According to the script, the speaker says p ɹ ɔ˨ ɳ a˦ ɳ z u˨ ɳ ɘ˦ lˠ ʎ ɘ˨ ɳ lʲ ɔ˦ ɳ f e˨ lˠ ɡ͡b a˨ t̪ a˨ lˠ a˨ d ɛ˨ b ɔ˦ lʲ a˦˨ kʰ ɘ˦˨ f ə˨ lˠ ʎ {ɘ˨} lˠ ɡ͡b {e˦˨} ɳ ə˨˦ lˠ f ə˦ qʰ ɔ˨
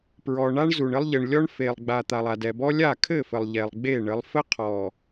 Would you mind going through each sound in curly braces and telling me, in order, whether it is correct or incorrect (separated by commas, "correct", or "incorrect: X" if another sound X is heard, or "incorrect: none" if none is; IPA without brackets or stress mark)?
incorrect: ɛ˨, correct